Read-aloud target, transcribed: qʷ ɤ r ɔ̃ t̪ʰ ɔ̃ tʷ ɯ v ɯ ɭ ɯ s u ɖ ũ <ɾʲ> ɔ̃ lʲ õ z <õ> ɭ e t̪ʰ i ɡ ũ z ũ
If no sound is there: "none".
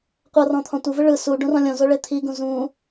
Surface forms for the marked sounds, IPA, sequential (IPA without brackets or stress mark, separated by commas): r, o